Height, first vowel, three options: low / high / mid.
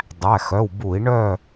low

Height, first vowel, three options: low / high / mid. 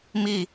high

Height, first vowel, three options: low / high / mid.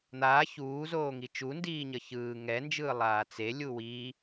low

